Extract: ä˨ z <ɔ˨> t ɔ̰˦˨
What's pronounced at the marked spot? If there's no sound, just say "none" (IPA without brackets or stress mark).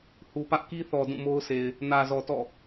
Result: ɔ˨